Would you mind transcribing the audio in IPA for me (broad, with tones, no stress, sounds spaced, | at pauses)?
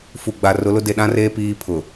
f u˨ ɡ͡b a˨ r ʊ˨˦ l ʊ˦ d e˨ ɗ ã˦ r eː˦ p iː˦ pʰ ʊ˨